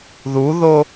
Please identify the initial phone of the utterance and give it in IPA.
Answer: ð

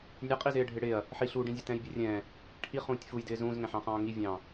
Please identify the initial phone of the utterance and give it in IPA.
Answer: nʲ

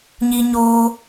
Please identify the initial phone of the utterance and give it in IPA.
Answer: ɲ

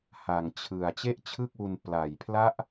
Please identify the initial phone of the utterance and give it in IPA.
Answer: h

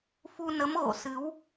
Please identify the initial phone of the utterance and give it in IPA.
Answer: f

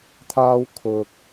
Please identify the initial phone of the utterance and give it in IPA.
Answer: t̪ʰ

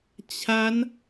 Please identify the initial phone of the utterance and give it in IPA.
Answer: t͡ɕʰ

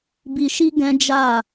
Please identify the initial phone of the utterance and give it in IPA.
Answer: b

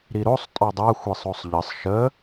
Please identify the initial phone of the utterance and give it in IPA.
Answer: ɾ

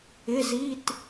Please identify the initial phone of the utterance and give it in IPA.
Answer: ɪ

